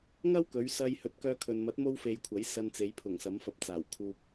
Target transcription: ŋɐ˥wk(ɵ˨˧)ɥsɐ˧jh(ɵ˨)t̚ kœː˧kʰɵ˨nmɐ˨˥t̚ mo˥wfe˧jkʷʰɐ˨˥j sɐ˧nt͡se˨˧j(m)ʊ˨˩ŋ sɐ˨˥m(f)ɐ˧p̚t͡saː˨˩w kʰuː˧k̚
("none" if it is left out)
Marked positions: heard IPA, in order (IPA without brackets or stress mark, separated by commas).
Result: ɵ˨˧, ɵ˨˥, pʰ, f